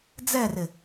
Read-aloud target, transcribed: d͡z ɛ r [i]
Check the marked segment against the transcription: incorrect: ɪ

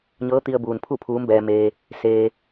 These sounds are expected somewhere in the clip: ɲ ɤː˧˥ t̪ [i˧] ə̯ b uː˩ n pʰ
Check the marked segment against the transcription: correct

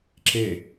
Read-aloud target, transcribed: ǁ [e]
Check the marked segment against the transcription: correct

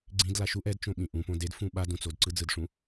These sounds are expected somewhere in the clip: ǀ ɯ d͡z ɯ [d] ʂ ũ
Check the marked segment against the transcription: correct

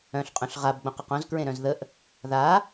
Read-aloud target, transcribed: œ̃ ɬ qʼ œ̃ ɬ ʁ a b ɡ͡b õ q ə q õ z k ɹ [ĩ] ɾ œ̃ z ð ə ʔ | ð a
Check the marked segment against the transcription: incorrect: ẽ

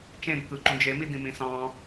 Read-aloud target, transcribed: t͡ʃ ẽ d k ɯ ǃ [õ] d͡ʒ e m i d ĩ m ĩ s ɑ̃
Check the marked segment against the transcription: incorrect: ũ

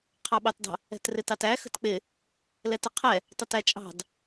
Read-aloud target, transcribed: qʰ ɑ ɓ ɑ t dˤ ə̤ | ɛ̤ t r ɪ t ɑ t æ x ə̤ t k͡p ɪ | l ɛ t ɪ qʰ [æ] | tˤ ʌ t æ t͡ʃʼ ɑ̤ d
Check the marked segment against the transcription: incorrect: ɛ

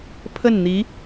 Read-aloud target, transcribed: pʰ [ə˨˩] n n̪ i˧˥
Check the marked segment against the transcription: incorrect: ə˥˩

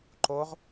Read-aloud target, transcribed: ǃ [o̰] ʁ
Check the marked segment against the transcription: incorrect: o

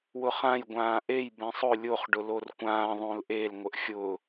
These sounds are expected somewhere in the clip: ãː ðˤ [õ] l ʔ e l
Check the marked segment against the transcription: correct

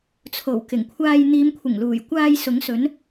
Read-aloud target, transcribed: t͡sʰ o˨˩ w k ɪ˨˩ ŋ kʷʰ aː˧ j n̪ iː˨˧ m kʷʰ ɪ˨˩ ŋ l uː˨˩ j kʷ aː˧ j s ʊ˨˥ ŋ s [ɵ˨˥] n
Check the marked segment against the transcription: correct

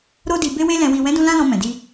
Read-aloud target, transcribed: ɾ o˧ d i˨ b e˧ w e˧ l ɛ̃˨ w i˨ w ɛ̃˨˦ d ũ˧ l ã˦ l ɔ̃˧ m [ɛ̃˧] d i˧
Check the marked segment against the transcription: incorrect: ɛ̃˨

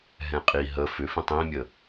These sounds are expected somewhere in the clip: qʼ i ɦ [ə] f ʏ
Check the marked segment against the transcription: correct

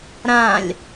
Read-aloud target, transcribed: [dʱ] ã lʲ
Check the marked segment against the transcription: incorrect: ɾ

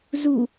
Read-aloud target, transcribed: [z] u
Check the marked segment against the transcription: correct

